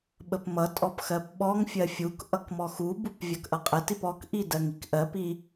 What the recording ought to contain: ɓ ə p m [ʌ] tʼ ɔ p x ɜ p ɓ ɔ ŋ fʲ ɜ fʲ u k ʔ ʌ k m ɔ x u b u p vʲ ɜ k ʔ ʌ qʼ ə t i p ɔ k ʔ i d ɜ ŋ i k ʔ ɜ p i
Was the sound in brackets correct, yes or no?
yes